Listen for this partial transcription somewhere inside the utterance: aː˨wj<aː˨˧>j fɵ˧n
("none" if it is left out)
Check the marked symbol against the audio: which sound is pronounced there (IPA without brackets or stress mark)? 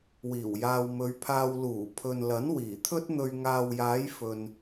aː˨˧